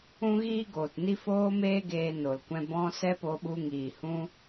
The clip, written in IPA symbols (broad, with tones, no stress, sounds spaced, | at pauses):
ũ˦ ɣ iː˦ ɡ oː˨ t n i˦ f oː˦ m eː˦ ɡ eː˧ n o˨ l kʷ ɛ̃˧ b ɔ̃˧ s ɛ˦ p o˧ ɓ u˧ ŋ iː˨ h ũ˦